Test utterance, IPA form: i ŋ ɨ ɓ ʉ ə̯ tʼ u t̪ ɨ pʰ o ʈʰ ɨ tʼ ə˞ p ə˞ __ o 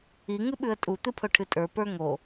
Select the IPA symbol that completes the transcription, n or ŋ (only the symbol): ŋ